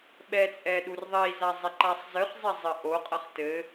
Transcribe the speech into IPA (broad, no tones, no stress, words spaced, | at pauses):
ɓɛt͡sʼɛ ɗurðˤiza zˤɛǃasˤzɨχzˤɛ zˤɘʔoqʼɐχ tɘ